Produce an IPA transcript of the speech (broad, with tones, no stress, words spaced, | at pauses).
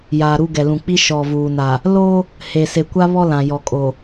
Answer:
jaː˨ɾu˦ɡɛ˨lũ˨ k͡pi˦ʃɔ˨vuː˨na˨ | lo˦ | he˨ se˨kʷa˦ βɔ˦lã˨jɔ˨kʼo˨